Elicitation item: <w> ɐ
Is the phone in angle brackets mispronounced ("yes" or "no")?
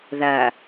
yes